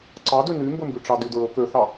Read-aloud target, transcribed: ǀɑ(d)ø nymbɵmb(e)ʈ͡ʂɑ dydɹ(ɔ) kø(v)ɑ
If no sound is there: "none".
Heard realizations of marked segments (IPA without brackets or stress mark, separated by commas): d, y, ɵ, θ